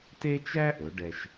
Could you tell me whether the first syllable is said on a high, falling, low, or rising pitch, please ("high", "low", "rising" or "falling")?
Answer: high